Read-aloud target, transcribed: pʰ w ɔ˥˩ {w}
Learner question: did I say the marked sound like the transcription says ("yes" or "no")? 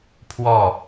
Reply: no